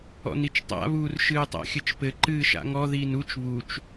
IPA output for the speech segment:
ɔ̰ n i t͡ʃ tˤ a̰ β uː r ʃ ɨː tˤ a̰ xʲ ɘ t͡ʃ p ɘ ǃ ɨː ʃ a̰ ŋ ɔ ð iː n u t͡ʃ β u t͡ʃ

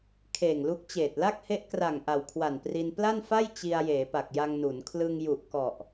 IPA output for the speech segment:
kʰ eː˨˩ ŋ l u˦˥ k̚ t͡ɕ eː˨˩ t̚ l a˥˩ k̚ h e˦˥ ʔ k r a˨˩ ŋ ʔ a˨˩ w kʰ w a˨˩ n p r i˧ n p l a˥˩ n f a˥˩ j t͡ɕ i˧ a̯ j eː˩˦ p a˨˩ k̚ j a˧ ŋ n u˩˦ n kʰ l ɯ˧ ŋ j u˨˩ ʔ k ɔ˨˩ ʔ

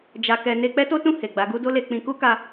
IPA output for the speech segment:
d͡ʒ a˨ k ɛ˨ n e˧ k͡p ɛ˦ t o˦ t ũ˦˨ h e˨ ɡ͡b a˨˦ ɡ u˦ d o˦ l e˧ k͡p ĩ˧ k u˦ k a˧

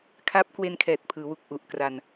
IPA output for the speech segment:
kʰ a˦˥ p̚ k w e˧ n kʰ ɛː˨˩ t̚ pʰ ɯː˩˦ w u˨˩ k̚ ʔ u˨˩ ʔ k r a˨˩ n

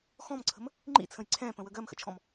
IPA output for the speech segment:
x ɔ̃ m ǀʰ ə̤ m | ŋ͡ǃ ḭ t͡sʰ ə̃ j ǀʰ ɛ̃ː p ə̃ w ə ɡ ɜ m x ə̰ t͡ʃʰ ɔ̃ m

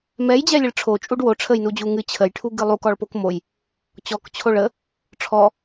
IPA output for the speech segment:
m ɛ j d͡ʑ ɛ lʲ ə ɭ ʈ͡ʂʰ o t͡ʃʼ u ɖ w o ʈ͡ʂʰ ə j n u d͡ʑ u ŋ ɨ t͡ɕʰ ə j ʈʰ u ɡ ɨ lˠ u k ɔ ɭ p o k m o j | t͡ɕ ɔ k t͡ɕʰ o ɭ ə | ʈ͡ʂʰ ɔ

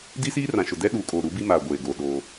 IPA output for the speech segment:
d i˦ s iː˦ r ã˨ ʃ ʊ˨ d ɛ˦ ɗ uː˨ kʼ oː˨ ɾ u˨˦ b i˦ m aː˨ ɡʷ eː˨ ɡ o˨ ɗ o˦

